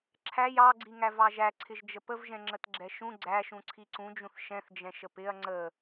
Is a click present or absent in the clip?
present